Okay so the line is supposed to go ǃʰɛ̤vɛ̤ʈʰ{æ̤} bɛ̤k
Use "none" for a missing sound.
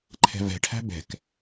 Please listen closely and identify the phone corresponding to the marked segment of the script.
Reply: æ̤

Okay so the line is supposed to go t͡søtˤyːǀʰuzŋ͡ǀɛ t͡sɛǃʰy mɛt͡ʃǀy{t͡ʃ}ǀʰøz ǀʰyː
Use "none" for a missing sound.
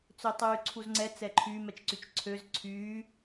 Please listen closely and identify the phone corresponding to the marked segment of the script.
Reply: t͡ʃ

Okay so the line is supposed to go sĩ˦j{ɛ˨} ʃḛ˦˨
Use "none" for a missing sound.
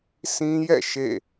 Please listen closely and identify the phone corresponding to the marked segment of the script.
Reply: ɛ̰˦˨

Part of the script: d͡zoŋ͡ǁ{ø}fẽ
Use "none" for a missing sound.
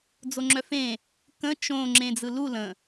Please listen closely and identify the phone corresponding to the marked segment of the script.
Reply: œ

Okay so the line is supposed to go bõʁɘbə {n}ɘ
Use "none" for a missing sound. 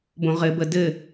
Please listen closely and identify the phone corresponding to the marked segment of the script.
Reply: d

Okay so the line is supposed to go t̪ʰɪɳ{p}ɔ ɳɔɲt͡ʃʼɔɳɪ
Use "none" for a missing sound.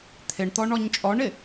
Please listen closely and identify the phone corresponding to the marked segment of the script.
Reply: t̪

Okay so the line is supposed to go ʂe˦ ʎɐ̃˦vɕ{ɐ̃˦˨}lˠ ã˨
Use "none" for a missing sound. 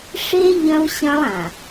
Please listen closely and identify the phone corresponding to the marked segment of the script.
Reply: ɐ̃˦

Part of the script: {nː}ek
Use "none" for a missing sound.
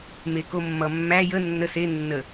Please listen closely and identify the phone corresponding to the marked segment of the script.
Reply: m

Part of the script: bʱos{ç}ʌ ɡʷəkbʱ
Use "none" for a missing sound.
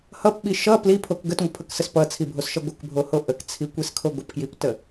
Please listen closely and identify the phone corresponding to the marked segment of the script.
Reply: ʃ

